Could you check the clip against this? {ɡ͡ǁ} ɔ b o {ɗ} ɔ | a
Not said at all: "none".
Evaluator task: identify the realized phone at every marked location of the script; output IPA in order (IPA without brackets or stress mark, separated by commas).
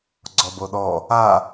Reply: ɡ͡ǀ, ɗ